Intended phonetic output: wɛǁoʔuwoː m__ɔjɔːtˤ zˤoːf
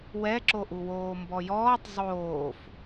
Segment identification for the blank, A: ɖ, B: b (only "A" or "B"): B